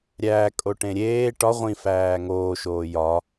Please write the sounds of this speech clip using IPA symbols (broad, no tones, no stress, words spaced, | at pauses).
ɾʲæːkʼoʈẽ ɾʲeː ʈɒ ʁʷĩfæː ŋoːʃoː jɒ